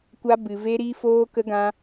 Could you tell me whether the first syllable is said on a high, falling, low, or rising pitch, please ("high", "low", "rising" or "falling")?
high